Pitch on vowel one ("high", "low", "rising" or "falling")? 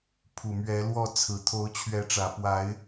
low